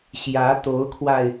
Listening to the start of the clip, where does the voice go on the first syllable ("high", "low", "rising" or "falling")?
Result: rising